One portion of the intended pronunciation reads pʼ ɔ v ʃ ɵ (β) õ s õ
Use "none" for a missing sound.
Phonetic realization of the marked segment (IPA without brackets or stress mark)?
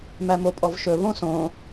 β